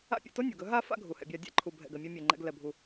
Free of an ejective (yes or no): yes